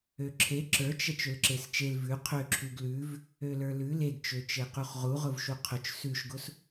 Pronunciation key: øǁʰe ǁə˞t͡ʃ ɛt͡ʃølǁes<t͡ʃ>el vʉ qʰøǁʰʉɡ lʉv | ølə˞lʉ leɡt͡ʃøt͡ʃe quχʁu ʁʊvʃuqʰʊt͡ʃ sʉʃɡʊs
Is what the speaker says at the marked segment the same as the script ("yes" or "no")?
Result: yes